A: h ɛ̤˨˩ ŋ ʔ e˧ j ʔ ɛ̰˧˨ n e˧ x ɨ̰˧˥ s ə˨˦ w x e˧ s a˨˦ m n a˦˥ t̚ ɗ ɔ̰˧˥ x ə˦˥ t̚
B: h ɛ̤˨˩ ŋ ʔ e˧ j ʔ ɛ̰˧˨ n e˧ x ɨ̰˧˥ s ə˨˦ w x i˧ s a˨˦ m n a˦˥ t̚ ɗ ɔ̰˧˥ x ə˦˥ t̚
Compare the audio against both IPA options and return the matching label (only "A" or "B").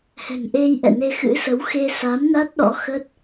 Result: A